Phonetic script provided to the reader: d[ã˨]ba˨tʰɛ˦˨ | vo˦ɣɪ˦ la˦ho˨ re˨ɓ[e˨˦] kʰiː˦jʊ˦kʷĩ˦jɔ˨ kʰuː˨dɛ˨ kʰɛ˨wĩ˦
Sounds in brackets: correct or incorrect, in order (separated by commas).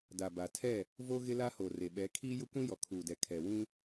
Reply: incorrect, incorrect